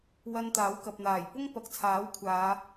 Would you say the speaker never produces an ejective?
yes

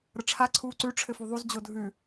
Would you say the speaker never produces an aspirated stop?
no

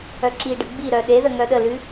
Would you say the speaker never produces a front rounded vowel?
no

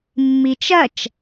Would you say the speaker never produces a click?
yes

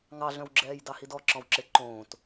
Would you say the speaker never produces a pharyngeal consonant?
yes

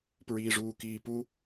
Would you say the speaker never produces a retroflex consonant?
no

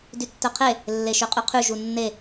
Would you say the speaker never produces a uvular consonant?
no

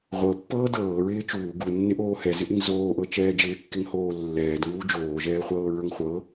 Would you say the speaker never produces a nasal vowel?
yes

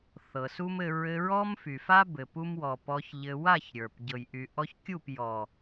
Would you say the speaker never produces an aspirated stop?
yes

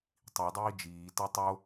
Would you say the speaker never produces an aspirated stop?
yes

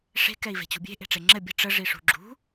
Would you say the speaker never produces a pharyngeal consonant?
yes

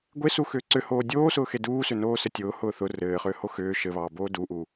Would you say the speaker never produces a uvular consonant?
no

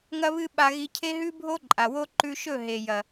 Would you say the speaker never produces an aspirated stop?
no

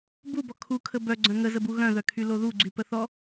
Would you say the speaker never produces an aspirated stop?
no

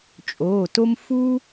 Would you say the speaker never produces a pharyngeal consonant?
yes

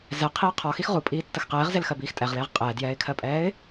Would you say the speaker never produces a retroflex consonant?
yes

